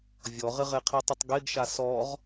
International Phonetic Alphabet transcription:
vʲ ɔ ʁ ɪ ʁ e qʰ i tˤ i tˤ ɡ e ɡ ʃ a s ɔ ʁ

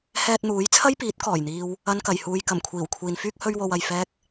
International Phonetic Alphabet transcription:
h ɛː˧ t̚ n̪ uː˨˥ j t͡sʰ ɐ˥ j p iː˨˥ t̚ k ɔː˨˩ j n̪ iː˧ w | ɐ˧ n k ɐ˨˩ j h uː˨ j k ɐ˨˩ m kʷʰ iː˨˩ w kʷʰ iː˨ n f yː˥ k̚ h ɵ˥ ɥ w o˧ w ɐ˨ j f ɛː˥ k̚

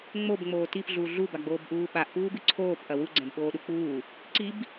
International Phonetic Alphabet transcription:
ŋ͡m o b ŋ͡m oː t i p ɮ uː ɮ u b a ɡ͡b oː b ʔ uː ɓ a ʔ p uː b ɨ ǀʰ oː p ʔ ɐ w u ɡ͡ǀ ɛ̃ b ɓ oː ɗ u k͡p uː | ǀ i b

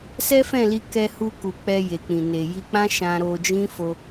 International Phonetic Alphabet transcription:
s ɛ˦ f ɛ̃˦˨ l i˧ k ɛ˧ h u˧ k u˨ k͡p ɛ˧ j e˨ k͡p ĩ˨ n e˨ j i˧ k͡p ã˦ ʃ ã˧ ɾ o˧ d͡ʒ ĩ˦ f o˧

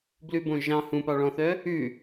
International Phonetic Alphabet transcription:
b l ʉ b õ ʒ ɑ̃ h ũ p ɑ ɭ ɔ̃ θ œ | ʉ

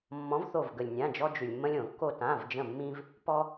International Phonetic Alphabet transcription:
mː ɔ̃˨˥ v θ o˧˩ v ɡ ə˩ lʲ nʲ ã˩˧˩ d͡ʒ ɔ˧ d͡ʒ ʉ˩ lʲ mː ə̃˧ lʲ õ˧˩˧ kː o˧ t ã˩˧˩ v d͡ʒ ə̃˧˩ mː ĩ˧ v | p ɔ˧

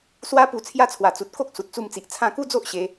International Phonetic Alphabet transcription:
s w a˦ p u˧ t͡sʰ j a˦ t͡sʰ w a˨˩ t͡s u˨ t̚ k o˦ k̚ s u˨ t̚ t͡s u˧ m t͡s i˨ ʔ t͡sʰ ã˧ k u˦ d͡z o˦ ʔ ɕ e˧

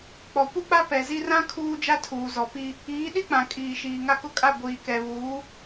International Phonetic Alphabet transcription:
k͡p ɔ˨ kʷ i˦ k͡p a˦ p ɛ˨ z i˦ r ã˦ kʰ uː˦ d͡ʒ a˦ tʰ uː˨ z ɔ˨ p i˦ | iː˨˦ ɗ i˦ k͡p ã˨ kʼ iː˨ ʃ iː˨ ŋ a˦˨ k ʊ˦ kʼ a˦˨ ɡʷ iː˨ k ɛ˨ β uː˨˦

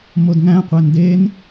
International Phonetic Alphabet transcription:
m o d ŋ æ̃ qʷ æ n d e n

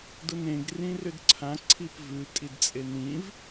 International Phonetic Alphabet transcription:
d ʊ n ẽ ɡ r ĩ r ʏ d ǀʰ ã ǀʰ i p v ʉ tʼ i d t͡sʼ e n ĩ v

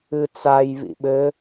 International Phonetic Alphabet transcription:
ɨ t͡s a j β ḭ ɓ ɘ

